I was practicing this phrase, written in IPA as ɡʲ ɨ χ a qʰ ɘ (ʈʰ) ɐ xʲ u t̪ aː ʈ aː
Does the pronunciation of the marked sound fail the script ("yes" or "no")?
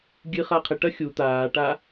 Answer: yes